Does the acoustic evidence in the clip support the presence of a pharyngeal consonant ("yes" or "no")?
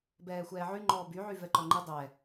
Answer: yes